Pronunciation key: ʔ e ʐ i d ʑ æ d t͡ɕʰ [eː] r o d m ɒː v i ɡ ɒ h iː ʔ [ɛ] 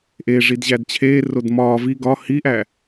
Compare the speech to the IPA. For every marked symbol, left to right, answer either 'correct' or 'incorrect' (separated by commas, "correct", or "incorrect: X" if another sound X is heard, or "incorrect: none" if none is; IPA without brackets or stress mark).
correct, incorrect: æ